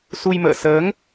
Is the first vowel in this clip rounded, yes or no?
yes